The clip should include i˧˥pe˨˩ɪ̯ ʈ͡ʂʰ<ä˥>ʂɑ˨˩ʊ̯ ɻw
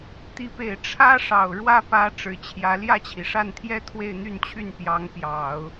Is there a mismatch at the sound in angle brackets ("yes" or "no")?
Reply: no